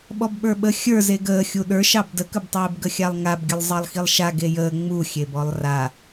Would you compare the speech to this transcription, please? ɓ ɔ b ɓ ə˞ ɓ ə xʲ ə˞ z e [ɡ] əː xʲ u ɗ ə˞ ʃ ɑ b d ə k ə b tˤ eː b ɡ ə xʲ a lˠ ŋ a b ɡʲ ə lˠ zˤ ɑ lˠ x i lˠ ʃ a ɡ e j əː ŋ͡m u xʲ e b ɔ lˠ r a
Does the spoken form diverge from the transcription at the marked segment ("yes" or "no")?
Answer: no